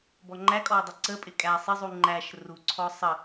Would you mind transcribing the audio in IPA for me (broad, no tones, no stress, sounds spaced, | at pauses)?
b ɔ ŋ͡ǃ æ kʼ ɔ ʊ̯ dˤ ə ǀ ə pʼ ɪ kʼ æ sˤ ɪ zˤ u ŋ͡ǃ æ ʃ r u ǀʰ ɔ sˤ ə